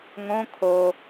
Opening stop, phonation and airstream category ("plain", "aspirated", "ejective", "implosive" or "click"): aspirated